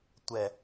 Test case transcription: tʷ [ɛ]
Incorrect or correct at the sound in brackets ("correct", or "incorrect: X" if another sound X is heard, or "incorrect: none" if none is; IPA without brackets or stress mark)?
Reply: correct